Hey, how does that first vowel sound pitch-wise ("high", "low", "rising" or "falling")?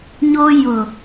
high